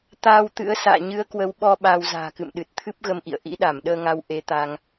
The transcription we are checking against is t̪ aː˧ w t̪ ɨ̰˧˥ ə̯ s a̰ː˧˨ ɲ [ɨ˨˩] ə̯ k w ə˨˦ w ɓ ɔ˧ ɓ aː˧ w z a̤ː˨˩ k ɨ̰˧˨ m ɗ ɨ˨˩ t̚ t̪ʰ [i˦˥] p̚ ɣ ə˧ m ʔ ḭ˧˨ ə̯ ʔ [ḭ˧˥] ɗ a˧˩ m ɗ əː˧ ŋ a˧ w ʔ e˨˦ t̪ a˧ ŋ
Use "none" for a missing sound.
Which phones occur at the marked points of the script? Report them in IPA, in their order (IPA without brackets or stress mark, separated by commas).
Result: ɨ˨˦, ɨ˦˥, ḭ˧˥